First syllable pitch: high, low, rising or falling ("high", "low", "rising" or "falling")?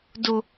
high